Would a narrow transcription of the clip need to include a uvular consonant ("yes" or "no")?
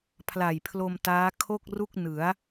no